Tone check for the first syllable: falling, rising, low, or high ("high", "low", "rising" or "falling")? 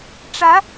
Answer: rising